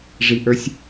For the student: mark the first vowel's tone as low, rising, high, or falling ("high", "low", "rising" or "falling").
low